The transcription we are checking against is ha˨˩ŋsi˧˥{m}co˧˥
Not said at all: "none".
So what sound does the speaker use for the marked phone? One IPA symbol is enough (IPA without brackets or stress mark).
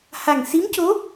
m